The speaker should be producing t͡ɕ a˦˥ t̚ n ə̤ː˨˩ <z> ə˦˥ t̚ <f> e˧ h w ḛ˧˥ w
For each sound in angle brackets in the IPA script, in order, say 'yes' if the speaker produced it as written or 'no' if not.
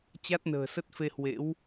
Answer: no, yes

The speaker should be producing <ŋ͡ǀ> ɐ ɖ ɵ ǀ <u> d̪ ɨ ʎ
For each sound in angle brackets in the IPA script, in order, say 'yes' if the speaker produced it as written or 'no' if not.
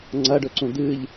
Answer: yes, no

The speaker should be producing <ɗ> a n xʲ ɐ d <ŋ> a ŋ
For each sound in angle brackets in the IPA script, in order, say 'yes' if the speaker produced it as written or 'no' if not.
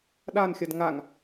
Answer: yes, yes

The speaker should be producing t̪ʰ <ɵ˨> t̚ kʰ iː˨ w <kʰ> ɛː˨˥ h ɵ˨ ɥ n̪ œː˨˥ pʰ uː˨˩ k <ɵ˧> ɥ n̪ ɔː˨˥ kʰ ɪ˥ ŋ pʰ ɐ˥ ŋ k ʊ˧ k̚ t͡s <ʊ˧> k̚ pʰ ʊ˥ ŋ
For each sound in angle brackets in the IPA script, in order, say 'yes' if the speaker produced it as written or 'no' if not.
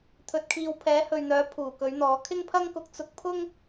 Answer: yes, no, no, yes

